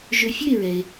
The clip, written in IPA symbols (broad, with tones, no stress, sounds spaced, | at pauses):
ʒ ɵ˧ fʲ ɵ˥˨ e̯ ɹ ɛ˩ e̯